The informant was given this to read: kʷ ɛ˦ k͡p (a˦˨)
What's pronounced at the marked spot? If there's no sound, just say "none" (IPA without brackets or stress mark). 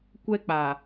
a˨